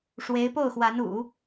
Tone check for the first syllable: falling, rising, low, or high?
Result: rising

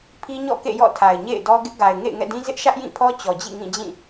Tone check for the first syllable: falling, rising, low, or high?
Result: high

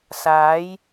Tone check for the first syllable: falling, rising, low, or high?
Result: rising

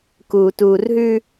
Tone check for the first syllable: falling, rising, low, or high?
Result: low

